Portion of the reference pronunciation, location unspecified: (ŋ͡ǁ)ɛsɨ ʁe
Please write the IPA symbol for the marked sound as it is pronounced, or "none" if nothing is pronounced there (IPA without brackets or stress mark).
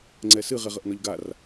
ŋ͡ǀ